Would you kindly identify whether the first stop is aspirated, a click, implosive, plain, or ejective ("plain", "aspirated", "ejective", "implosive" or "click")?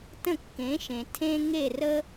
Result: plain